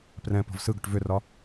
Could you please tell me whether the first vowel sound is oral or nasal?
nasal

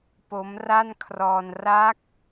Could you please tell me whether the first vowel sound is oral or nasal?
oral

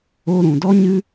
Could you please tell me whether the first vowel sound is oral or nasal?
oral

